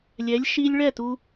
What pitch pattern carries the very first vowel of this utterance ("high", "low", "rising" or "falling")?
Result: rising